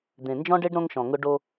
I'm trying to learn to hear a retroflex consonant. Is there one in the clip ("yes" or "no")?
yes